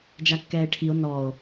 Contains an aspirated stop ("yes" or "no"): yes